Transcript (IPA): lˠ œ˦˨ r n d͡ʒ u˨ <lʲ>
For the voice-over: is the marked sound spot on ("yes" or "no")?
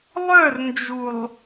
no